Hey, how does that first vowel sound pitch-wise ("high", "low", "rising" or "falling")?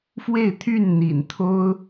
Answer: falling